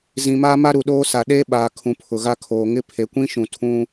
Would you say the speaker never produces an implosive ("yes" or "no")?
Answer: no